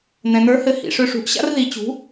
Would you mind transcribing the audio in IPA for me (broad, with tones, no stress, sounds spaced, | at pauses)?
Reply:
n̪ ɛ̃˩ n̪ ə˞˩˥ h ɘ˩˥ h ḭ˩ ʂ ø˧ ʂ ṳ˩˥ ʔ ɕ a̰˥ r ð i˩˥ t͡ɕ ṳ˩˥